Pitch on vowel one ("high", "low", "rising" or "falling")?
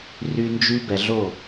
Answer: high